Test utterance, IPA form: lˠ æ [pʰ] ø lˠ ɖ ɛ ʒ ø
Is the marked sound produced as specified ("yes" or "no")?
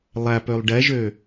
no